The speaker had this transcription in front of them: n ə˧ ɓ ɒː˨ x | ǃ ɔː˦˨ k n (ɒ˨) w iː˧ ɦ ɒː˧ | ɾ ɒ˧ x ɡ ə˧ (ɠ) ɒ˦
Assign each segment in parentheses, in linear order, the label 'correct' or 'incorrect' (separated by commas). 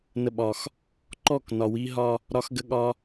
correct, correct